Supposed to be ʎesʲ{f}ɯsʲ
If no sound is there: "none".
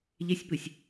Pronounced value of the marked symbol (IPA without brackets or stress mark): p